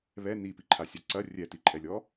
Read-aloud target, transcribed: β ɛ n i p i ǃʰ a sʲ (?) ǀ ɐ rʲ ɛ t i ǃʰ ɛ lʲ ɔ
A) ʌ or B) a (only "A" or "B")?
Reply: B